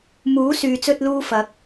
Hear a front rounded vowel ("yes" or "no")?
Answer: yes